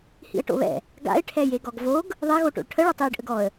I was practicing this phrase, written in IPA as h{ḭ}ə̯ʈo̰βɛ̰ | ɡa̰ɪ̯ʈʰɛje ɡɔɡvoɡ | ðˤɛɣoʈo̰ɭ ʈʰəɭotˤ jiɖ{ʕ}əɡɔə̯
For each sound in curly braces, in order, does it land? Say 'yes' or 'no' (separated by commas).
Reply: yes, no